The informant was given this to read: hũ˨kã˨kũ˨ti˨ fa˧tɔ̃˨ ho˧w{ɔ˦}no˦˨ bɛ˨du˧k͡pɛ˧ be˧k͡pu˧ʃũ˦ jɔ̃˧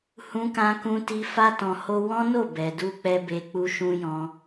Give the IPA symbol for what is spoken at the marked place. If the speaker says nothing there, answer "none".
ɔ̃˦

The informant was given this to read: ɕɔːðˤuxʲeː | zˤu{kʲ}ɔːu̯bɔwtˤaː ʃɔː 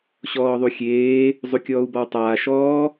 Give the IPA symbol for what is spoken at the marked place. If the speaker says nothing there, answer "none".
kʲ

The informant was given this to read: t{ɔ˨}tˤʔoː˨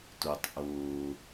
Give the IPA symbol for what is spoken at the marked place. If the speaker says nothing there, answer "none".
o˨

